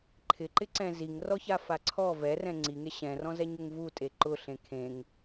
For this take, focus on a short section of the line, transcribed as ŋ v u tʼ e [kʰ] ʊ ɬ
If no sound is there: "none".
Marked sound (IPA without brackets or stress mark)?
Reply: ǃ